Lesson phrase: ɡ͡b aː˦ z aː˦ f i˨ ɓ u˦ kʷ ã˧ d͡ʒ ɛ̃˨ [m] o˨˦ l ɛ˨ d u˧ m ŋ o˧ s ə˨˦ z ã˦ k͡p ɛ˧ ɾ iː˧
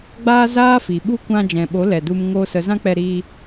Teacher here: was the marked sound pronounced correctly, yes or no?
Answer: no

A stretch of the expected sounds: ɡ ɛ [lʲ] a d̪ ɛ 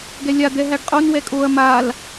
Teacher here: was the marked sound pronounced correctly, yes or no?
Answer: yes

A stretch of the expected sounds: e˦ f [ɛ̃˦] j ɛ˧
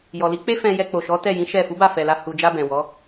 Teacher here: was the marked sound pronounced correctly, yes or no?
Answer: no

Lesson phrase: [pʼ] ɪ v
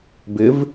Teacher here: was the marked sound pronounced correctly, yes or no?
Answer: no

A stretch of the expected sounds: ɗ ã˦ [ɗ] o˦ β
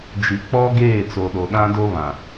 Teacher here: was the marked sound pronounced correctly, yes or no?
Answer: no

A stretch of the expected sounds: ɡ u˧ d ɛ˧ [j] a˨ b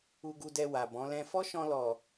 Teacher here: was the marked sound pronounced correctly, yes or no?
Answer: no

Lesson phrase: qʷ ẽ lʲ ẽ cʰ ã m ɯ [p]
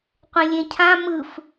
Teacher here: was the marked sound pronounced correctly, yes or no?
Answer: no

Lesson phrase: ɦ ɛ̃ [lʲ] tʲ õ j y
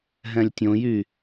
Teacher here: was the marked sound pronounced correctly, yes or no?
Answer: yes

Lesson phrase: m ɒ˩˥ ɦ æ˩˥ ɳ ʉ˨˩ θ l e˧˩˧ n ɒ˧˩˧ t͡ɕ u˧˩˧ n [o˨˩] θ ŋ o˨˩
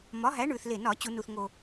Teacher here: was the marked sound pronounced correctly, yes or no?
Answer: no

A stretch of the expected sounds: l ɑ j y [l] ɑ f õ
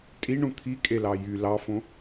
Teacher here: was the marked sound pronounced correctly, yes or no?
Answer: yes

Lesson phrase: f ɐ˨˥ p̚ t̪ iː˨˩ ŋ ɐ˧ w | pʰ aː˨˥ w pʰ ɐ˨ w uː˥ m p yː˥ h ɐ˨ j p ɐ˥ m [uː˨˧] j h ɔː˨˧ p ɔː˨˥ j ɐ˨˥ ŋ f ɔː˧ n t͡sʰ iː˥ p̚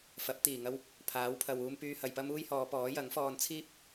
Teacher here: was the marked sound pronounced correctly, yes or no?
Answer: no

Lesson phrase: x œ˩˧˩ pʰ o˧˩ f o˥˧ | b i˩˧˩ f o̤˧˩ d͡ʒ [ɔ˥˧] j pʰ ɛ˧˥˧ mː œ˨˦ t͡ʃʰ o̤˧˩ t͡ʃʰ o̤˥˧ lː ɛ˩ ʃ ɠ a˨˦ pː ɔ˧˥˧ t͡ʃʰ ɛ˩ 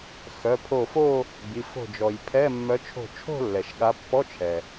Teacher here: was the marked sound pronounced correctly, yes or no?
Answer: no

